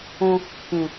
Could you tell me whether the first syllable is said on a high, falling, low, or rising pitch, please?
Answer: high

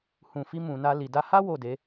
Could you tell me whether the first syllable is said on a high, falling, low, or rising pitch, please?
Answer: low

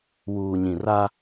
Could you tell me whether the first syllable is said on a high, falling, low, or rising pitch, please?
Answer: low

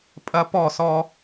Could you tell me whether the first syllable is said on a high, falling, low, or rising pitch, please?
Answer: high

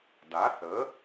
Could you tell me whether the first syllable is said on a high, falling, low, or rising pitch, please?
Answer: rising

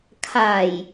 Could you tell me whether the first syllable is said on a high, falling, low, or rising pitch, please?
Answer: low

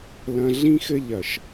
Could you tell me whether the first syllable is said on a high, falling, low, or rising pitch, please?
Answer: low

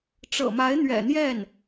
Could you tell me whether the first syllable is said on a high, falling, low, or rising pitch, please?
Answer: low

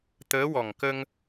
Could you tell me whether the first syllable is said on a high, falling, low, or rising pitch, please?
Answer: rising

